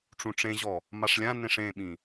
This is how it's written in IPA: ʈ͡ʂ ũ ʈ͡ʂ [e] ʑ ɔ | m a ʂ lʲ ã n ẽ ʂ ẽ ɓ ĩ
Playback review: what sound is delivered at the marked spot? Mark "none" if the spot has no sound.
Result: ẽ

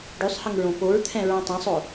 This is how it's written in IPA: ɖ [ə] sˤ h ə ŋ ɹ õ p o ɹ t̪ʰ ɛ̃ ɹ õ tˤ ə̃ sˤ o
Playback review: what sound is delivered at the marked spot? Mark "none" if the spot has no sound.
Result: ʉ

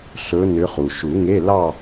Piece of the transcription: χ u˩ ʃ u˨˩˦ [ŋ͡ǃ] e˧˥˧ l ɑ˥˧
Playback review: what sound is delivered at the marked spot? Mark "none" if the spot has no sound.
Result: ŋ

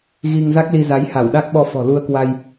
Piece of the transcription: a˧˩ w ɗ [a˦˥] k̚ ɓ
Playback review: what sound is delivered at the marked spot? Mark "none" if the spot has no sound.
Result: a˦˥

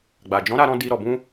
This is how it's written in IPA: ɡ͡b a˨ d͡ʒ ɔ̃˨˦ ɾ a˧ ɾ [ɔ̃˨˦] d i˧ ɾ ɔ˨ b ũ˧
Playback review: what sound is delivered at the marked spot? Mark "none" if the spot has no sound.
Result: ɔ̃˧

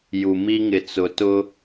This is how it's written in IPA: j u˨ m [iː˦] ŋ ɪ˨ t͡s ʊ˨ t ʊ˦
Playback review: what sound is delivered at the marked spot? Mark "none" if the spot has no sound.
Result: i˦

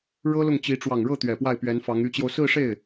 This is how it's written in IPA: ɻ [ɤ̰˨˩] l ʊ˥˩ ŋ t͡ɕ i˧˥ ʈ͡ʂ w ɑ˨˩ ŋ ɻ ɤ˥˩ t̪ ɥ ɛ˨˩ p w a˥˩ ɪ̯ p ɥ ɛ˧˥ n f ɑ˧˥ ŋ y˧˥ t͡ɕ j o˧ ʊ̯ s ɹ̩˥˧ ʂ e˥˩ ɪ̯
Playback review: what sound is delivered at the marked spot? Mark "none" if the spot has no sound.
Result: ɤ˥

